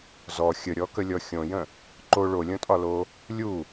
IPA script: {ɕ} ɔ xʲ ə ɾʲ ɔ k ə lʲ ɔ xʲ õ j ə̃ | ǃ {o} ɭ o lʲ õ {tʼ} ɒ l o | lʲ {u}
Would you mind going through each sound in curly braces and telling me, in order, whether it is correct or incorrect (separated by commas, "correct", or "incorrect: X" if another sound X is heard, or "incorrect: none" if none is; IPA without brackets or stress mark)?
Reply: incorrect: z, correct, correct, correct